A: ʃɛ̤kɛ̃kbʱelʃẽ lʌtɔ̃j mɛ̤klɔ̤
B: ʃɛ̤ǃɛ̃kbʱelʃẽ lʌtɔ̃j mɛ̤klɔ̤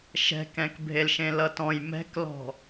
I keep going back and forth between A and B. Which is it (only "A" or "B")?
A